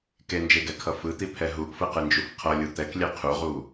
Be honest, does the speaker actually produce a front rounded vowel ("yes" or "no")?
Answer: no